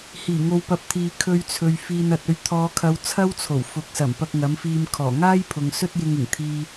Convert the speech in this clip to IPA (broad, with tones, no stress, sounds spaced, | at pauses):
h iː˨˩ ŋ o˨ w p ɐ˨˥ p̚ t̪ʰ iː˨ kʰ ɵ˧ ɥ t͡sʰ ɵ˨ ɥ f iː˨ n ɐ˨ t̚ ɵ˧ ɥ t̪ʰ ɔː˨˧ kʰ ɐ˨˧ w t͡sʰ ɐ˥ w t͡sʰ o˨˩ w f ʊ˨˥ k̚ s ɐ˨˩ m p ɐ˧ k̚ ŋ ɐ˨˥ m f iː˧ m kʰ ɔː˨˩ ŋ aː˥ j pʰ ʊ˨ ŋ s ɵ˥ t̚ j ɪ˧ ŋ ɪ˨˩ ŋ t̪ʰ iː˧